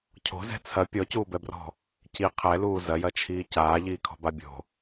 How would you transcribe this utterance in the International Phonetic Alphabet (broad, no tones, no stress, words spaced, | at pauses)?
cʰo̤zɛ̤ t͡sʰɐ pʲɔcuːbɛbrɔ̤ | ci qʰɛluː zɐjɐt͡ʃʰiː caːʎiːkʰɔ̤ba bʲo̤